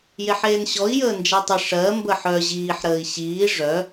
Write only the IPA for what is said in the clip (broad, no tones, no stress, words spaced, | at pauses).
jeħeːnɕɔi̯ jəːnd͡ʒɛtˤə ʂɜ mbəħœ ʑiːħɾəːi̯ ɕiː ʐœ